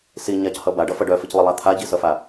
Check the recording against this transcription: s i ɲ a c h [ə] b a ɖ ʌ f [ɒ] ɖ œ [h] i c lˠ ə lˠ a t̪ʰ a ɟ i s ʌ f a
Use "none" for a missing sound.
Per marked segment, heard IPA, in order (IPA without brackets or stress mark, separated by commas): ʌ, ʌ, f